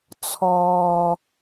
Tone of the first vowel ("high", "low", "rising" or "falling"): low